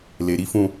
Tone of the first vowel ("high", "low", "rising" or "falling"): low